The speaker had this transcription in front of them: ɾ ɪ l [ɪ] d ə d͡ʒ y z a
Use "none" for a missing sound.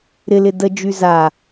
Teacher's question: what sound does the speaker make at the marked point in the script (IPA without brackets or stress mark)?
ɪ